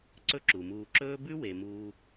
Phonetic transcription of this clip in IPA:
ǀ ɵ˦ ǁ u˩ m uː˨ ǁ ɵː˥ b ʉ˥ w e˩ m uː˨

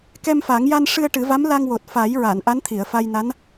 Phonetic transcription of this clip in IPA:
k ɛ˧ m f a˨˩˦ ŋ j a˧ n ʂ ɨ˧ ə̯ ʈ ɨ˨˩˦ v a˧˥ m l a˧ ŋ w o˨˩ t̚ f a˨˩˦ j ɹ a˨˩˨ n ʔ a˧˥ n t̪ʰ i˨˩˨ ə̯ f a˧ j n a˧˥ n

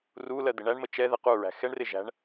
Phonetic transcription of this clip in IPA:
r u l ɜ d̪ ɪ ɳ æ ɳ m ə t͡ʃ ɛ ð ɛ q u ɹ æ̤ x ɛ ɳ r ɪ ʒ æ̤ ɳ

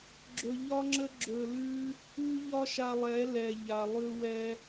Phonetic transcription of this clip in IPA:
ɡ͡ǁ ɵ˧ ʎ ɒ˦ ŋ͡ǁ ə˦ ɡ͡ǁ ɵ˧ l ʉ˦ | ʉ˦ ʎ ɒ˦ ʃ a˧ lˠ ɛ˨˦ l ɛ˨ ʎ a˨ lˠ ʉ˧ w ɛ˧

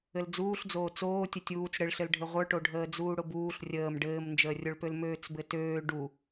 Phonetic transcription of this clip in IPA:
ɘ l d͡z uː ɬ d͡z oː t͡s oː tʲ ə tʲ uː t͡s ɽ ɘ ɭ ɬ ɘ l ɖʱ ɘ ʁʷ ə˞ ʈ o ɖʱ əː d͡z uː ɽ ʊ b uː ɬ rʲ əː m ɖ ɘː m n d͡ʒ əː rʲ o ɭ p ø l m øː t͡s b ɘ t øː ɖ u

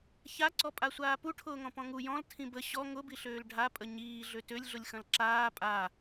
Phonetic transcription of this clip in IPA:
ç a ǀ ɔ pʼ a sʷ aː p u ʈʰ ʊː ŋ ɔ̃ p ɔ̃ ŋ u j ɔ̃ l tʰ ĩ b ə ɕ ɔ ŋ ʊ b i ɬ øː l ɖʱ a pʼ ə ɲ iː ɮ ø t ø lʲ ɮ ʊ lʲ x ɐ̃ l ǁ aː pʼ a

